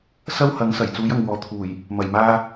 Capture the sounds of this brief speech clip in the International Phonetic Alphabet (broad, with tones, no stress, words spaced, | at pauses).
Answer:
sɐ˥whɐ˨˥ŋ sɐ˨˩j t͡suː˨˥jɐ˨ŋwɔː˨ t̪ʰuː˨˩j | mɐ˨˩jmaː˧